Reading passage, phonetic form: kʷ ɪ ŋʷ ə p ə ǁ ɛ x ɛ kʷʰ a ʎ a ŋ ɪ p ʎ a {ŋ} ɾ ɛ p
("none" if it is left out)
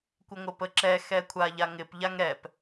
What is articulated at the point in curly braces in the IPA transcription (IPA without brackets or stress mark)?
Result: ŋ